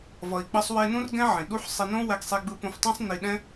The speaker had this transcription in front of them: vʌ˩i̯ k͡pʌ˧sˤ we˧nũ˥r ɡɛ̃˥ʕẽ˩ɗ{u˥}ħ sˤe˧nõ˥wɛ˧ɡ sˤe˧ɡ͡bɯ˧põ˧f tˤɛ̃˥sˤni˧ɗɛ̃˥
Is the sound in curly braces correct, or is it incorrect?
correct